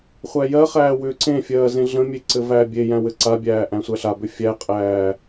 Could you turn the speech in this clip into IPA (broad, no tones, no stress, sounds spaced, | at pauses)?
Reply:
χʷ æ j ɜ χ æː w ʏː ǀ ẽ fʲ ɜː z ẽ ɮ ə̃ mʲ e ǀ ɘ v æː bʲ e j æ̃ w ɘ ǀ a bʲ æː ʔ æ̃ sʷ æ ɬ a b ʏ fʲ æ qʼ æː